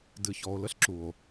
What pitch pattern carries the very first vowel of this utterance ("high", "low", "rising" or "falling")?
low